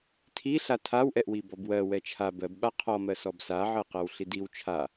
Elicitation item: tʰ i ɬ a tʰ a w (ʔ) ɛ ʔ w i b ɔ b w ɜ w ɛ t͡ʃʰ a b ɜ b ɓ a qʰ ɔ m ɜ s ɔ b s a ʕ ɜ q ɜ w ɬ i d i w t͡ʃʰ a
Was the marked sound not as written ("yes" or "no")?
no